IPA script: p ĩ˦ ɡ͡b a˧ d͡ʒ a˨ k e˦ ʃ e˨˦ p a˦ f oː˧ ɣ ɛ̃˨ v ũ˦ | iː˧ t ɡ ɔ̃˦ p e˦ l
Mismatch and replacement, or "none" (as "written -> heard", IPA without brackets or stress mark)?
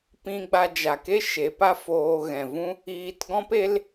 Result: none